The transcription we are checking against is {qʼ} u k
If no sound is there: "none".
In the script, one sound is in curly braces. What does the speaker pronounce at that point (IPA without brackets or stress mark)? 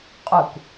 qʼ